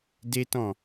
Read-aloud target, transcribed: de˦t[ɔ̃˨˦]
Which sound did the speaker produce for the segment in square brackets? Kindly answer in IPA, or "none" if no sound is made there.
ɔ̃˦˨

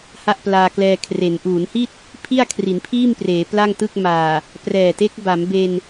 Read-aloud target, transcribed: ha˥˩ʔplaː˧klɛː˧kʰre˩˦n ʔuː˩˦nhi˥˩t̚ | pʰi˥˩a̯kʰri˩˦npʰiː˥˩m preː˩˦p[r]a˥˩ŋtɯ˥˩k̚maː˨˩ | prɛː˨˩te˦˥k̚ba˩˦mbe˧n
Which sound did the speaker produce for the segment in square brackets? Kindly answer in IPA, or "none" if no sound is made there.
l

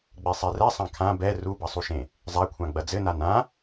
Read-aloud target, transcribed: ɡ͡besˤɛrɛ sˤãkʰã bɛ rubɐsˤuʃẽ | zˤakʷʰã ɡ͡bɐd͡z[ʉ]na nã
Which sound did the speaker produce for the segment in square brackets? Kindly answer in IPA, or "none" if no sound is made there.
ɘ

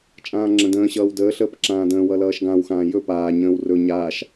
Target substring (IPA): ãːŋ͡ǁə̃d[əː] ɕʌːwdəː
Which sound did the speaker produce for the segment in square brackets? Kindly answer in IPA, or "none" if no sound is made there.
ə̃ː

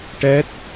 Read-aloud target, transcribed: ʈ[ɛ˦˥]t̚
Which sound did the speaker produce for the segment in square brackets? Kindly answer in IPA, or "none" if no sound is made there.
ɛ˦˥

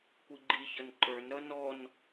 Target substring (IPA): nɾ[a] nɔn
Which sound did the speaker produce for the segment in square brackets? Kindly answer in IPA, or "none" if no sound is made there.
ʌ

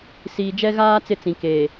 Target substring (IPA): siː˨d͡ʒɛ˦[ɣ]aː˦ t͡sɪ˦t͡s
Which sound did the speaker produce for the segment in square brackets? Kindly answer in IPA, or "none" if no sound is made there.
ɣ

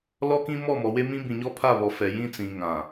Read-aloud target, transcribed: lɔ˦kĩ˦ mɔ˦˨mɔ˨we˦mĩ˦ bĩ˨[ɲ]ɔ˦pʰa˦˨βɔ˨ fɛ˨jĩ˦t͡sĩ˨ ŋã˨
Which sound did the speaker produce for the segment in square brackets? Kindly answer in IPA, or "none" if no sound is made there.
ɲ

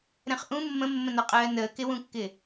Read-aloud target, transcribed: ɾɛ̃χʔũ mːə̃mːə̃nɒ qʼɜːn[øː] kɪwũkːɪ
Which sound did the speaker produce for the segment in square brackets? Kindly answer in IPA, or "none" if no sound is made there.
əː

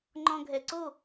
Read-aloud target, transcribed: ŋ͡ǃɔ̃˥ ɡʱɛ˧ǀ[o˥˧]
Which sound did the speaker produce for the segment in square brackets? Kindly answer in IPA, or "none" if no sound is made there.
o˥˧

